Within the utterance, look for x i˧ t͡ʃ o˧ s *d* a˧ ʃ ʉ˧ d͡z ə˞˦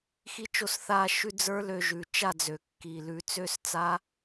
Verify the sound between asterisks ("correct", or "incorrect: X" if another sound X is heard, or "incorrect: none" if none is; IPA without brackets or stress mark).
incorrect: θ